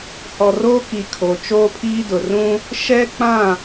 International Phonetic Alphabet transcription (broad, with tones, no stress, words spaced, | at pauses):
hɔ˨roː˦ki˨ kʰo˨ t͡ʃoː˦pʰiː˦dʊ˨ rũ˦ | ʃɛ˦k͡pã˦˨